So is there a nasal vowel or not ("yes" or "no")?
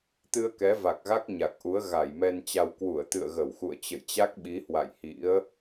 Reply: no